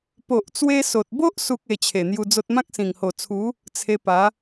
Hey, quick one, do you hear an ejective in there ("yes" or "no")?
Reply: no